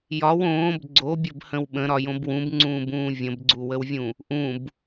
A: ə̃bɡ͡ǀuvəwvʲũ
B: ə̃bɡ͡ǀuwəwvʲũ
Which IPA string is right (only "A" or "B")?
B